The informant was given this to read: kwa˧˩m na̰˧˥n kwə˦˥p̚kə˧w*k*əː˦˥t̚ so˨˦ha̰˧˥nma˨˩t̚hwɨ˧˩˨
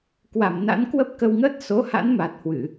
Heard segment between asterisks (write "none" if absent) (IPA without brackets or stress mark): ŋ